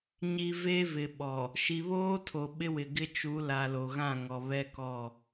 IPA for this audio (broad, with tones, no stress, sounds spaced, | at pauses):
ɲ i˨ v e˦ v ɪ˨ ɓ ɔ˨ | ʃ i˨ β oː˦ tʰ o˨ ɓ ɪ˦ w ɪ˨ ɡ ɪ˦ t͡ʃ u˨˦ l a˨ l o˨ ɣ ã˦˨ ŋ ɔ˨ β ɛ˦ k ɔ˦˨